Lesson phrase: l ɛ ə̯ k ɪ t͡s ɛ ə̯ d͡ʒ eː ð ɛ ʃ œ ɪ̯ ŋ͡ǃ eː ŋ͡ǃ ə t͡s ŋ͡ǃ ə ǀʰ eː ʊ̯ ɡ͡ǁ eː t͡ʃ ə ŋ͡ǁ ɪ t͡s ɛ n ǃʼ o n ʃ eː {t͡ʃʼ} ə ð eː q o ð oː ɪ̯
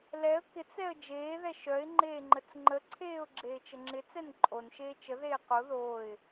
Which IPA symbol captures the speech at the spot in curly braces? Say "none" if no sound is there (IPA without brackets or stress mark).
t͡ʃ